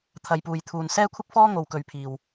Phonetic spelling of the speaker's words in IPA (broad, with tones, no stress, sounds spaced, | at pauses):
t̪ʰ ɐ˧ j p uː˧ j t̪ʰ uː˧ n s ɛː˥ kʷʰ ɪ˥ k̚ f ɔː˥ ŋ o˨ w k ɵ˧ ɥ pʰ iː˨˩ w